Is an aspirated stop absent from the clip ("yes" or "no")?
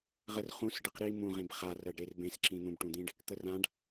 yes